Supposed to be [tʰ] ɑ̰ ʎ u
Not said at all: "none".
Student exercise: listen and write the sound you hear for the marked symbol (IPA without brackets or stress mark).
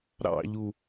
ɾ